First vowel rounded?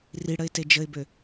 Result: no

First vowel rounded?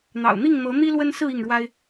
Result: no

